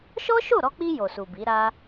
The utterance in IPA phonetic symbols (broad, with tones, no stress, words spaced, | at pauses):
ʃɔ˦ʃo˦˨ɾɔ˧k͡pi˧ jo˨su˨bi˨˦ ɾa˦